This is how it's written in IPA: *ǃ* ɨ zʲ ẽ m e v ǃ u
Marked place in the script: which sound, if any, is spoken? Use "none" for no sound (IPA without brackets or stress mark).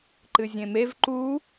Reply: ǃ